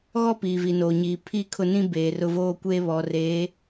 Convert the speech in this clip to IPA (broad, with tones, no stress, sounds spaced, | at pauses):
ɣ ɔ˦ p iː˨ v i˨ n oː˨ ɲ iː˨ pʰ i˦˨ kʰ ʊ˦˨ n ĩ˦ b eː˨ r ʊ˦ v oː˦ kʷ eː˦ β ɔ˨ r eː˨˦